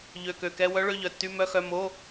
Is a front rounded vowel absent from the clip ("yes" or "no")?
no